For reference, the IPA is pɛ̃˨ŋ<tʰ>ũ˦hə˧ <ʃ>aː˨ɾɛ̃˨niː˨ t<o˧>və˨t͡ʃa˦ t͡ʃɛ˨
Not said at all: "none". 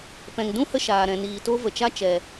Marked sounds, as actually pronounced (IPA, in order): d, ʃ, o˦

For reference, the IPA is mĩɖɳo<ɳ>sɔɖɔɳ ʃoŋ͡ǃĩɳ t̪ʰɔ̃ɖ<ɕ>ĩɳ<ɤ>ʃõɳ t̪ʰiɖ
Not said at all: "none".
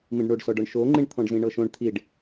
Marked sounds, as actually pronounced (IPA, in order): ɖ, z, ɤ

